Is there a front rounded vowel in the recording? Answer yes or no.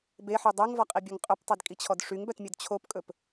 yes